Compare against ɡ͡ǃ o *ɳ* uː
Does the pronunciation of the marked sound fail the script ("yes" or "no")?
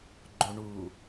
no